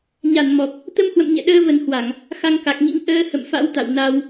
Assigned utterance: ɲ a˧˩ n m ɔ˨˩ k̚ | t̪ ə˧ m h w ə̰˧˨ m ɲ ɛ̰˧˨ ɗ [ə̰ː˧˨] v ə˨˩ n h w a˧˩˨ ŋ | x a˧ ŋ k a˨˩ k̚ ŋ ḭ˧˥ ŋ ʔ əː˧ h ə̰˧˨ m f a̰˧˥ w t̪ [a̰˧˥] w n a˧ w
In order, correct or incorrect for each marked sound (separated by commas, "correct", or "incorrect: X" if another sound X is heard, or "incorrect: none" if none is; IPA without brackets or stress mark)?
incorrect: əː˧, incorrect: a̰˧˨